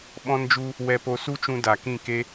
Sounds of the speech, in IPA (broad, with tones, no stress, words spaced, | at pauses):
ɓɔ̃˦nd͡ʒu˦ | wɛ˧po˧ su˦t͡ʃũ˧ da˨ kĩ˦˨ke˦